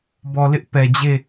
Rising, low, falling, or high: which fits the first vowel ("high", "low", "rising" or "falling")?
low